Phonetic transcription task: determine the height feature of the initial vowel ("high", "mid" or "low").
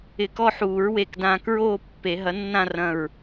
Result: high